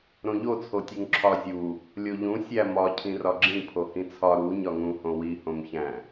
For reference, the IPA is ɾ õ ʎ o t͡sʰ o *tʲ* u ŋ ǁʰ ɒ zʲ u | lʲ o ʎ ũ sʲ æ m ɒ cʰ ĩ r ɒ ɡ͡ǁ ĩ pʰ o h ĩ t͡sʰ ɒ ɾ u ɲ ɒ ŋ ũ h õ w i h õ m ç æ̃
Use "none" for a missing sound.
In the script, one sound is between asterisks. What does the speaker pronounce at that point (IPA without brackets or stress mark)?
tʲ